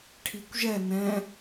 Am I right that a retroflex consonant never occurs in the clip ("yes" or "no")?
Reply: no